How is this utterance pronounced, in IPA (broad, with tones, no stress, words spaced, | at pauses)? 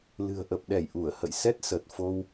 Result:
lɨ̤˨˩ə̯ ʔə˨˩p̚ɗɛ˧˩j ʔu˧˩ə̯hə̰˧˨j sɛ˦˥t̚sə˨˩t̚ fo˧w